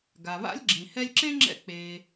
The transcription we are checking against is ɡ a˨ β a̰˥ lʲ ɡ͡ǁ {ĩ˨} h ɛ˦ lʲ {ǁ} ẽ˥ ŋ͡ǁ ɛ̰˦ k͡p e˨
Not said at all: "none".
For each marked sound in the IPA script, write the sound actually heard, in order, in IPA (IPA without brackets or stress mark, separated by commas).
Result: ĩ˨, ǁ